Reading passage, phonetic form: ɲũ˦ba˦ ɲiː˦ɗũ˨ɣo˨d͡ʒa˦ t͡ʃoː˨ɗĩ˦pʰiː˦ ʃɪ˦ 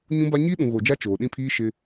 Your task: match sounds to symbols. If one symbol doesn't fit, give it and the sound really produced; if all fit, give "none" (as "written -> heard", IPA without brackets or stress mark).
none